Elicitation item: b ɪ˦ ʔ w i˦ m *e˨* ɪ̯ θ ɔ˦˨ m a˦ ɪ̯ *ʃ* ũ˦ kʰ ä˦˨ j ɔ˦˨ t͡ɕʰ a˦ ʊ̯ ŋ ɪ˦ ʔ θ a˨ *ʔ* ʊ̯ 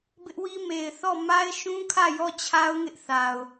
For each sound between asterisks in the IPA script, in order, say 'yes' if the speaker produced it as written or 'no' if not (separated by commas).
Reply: yes, yes, no